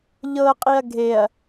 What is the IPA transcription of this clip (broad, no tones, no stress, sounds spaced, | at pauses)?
ʎ ɤ qʼ i ɐ̯ ɡʱ e ɐ̯